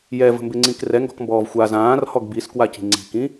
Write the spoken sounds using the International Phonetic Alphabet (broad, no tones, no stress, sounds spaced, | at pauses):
j ɛ v ə̤ m b ɪ ŋ͡ǀ ĩ k r ɛ ŋ ɡ ɔ̤ k m b ɔː v xʷ a z ãː r h ɔ ɡ b i s k w a c i̤ ŋ͡ǀ i̤ k ĩ